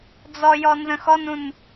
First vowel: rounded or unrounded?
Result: rounded